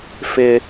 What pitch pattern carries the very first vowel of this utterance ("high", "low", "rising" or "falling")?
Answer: high